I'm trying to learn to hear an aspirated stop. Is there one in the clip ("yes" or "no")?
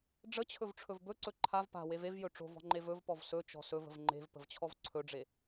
yes